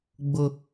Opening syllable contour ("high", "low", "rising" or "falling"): high